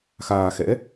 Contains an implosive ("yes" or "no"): no